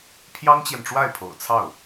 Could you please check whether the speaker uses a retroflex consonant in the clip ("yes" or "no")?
yes